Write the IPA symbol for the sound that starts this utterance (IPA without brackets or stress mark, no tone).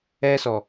ɛ